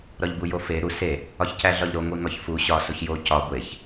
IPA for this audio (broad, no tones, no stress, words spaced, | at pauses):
ɾɒʎbujofe ɾu se | ɒçcæɮɒʎɾo ŋʷiŋɒçfu ɕɒ soçjo cɒ ɡʷeç